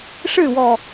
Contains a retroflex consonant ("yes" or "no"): yes